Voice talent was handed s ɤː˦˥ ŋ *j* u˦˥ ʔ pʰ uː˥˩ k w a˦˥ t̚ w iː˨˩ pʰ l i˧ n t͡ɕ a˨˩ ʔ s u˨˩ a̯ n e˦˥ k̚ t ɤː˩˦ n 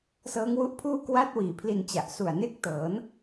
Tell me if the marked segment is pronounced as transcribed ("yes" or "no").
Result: no